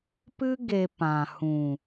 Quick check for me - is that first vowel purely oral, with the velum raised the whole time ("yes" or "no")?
yes